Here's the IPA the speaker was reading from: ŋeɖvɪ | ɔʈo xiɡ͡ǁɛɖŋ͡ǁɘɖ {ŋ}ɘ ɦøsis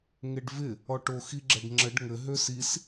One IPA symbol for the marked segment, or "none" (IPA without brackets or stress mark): ŋ